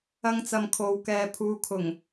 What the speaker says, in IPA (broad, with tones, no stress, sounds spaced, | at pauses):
ɐ˧ ŋ t͡s ɐ˨ m kʰ o˨ w k ɛː˨ pʰ uː˨˧ kʰ ʊ˨˩ ŋ